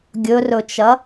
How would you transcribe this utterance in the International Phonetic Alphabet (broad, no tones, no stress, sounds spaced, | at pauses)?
ɡʲ ɵ r ɵ t͡ʃ ɐ